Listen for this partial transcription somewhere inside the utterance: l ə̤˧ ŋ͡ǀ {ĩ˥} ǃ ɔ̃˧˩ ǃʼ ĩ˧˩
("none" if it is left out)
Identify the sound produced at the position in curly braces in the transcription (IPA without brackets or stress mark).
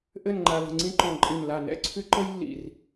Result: ĩ˥